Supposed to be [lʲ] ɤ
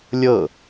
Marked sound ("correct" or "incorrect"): correct